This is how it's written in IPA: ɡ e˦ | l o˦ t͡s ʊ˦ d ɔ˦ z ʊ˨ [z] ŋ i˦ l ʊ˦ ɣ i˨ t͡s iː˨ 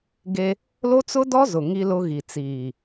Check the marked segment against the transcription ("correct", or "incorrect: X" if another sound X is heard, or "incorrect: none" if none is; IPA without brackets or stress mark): incorrect: none